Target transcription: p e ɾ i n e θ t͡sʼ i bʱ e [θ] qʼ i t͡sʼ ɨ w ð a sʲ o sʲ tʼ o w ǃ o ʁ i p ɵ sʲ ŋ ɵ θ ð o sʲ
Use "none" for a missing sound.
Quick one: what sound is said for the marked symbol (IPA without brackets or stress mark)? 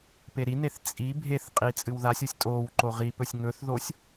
θ